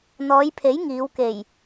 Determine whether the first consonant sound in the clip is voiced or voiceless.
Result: voiced